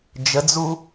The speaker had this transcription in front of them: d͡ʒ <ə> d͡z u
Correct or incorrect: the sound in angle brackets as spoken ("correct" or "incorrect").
correct